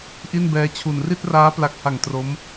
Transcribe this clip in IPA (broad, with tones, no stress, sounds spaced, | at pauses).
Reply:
ʔ i˥˩ n b ɛː˧ t͡ɕʰ u˨˩ n r i˥˩ t̚ r aː˦˥ p l a˨˩ k̚ h a˨˩ ŋ t r o˦˥ m